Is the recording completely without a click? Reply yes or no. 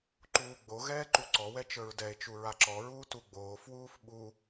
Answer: no